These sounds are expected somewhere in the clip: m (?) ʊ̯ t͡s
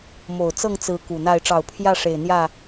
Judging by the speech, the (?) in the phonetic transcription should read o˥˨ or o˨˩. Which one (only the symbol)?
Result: o˨˩